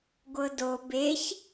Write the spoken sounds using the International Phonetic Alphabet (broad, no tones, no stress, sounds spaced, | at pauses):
ɡʷ ɤ d o b e ç